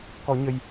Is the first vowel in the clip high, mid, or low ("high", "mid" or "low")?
mid